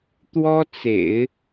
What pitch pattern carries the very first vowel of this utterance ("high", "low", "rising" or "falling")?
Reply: high